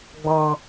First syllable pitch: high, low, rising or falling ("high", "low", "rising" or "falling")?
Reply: low